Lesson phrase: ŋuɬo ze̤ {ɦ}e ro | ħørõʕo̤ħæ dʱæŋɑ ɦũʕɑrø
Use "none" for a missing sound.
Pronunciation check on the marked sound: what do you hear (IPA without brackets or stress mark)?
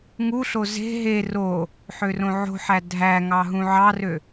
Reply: ɦ